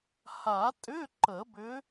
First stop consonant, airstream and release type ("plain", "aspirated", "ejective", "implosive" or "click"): ejective